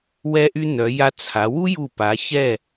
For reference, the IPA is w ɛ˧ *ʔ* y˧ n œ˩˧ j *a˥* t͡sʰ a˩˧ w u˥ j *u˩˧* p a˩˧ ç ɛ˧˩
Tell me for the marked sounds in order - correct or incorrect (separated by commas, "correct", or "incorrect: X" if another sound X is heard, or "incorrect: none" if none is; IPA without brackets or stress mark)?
correct, incorrect: a˧, incorrect: u˧˩